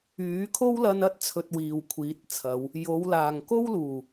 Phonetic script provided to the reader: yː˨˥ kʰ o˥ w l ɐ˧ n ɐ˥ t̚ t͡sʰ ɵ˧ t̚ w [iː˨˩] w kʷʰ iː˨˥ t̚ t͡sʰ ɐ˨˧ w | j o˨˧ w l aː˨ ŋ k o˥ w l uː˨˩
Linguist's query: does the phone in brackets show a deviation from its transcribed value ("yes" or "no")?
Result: yes